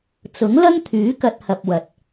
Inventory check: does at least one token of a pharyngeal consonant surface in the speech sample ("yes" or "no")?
no